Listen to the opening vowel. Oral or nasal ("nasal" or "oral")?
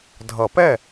oral